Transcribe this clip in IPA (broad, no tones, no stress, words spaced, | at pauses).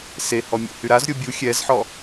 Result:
sehɔ mʲo̰hyɾazɾʲo bʲu xʲɛzħɔ